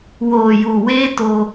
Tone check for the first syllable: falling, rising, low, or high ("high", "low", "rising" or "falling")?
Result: low